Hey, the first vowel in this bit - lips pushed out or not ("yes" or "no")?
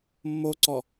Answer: yes